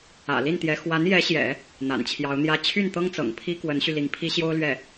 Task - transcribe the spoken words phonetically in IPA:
ä̰˨˩ l i˥˩ n t̪ j ɛ˧˥ x w a˧˥ n j ɛ˧˥ ɕ j ɛ̰˨˩˦ | n̪ a̰˨˩ n t͡ɕʰ j ɑ˧˥ ʊ̯ n̪ j ä˥ t͡ɕʰ y˥˩ n t̪ ɤ˥ ŋ t͡s ɤ̰˨˩ ŋ pʰ i˥ k w ə˧˥ n ɕ y˧ l i˧˥ ŋ pʰ i˥ ɕ j o˥ ʊ̯ l ɥ ɛ˥˩

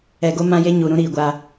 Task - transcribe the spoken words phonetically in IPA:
ɛ˨ ɡ o˦ m ã˦ j e˦ ɲ u˨ ɾ ũ˦ ɾ iː˨ ɡʷ a˦

